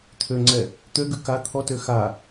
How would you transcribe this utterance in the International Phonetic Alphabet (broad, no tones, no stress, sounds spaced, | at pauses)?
t̪ʰ ø ŋ͡ǀ ɛ | t̪ ø ɡ ʉ k a t̪ʰ ɔ t ø x a